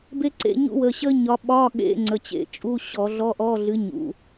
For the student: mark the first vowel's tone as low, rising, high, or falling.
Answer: high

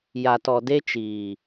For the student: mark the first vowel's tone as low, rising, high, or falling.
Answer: low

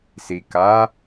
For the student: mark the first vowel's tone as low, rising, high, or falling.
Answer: low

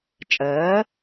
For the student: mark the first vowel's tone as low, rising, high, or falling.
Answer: rising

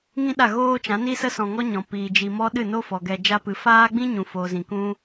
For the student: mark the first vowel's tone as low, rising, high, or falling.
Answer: high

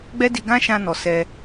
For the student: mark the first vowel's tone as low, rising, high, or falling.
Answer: high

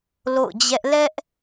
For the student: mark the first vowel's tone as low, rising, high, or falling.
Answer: falling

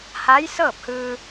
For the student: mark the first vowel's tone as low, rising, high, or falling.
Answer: rising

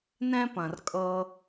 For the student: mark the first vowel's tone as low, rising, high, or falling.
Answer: high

